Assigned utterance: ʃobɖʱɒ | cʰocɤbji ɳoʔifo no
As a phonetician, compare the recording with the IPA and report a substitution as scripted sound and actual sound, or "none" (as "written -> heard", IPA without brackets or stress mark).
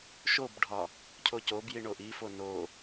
ɤ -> o